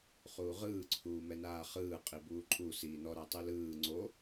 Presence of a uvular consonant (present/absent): present